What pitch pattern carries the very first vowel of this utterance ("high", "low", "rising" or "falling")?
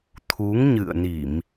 rising